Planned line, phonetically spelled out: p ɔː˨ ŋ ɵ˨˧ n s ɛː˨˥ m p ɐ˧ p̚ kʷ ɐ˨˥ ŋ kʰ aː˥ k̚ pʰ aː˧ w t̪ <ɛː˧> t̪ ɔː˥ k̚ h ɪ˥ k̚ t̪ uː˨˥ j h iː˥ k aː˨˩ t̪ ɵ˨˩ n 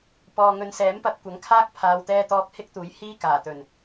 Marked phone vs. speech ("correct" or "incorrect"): incorrect